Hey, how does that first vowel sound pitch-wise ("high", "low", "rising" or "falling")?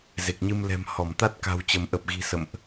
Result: low